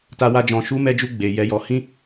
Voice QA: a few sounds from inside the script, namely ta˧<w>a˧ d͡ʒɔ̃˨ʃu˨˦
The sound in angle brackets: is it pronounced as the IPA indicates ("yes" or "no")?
yes